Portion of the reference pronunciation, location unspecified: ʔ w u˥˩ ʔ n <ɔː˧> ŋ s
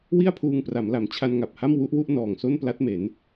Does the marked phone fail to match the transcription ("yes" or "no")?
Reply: yes